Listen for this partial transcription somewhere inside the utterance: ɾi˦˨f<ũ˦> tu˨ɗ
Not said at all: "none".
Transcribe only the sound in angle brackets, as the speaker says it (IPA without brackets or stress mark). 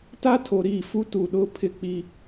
u˦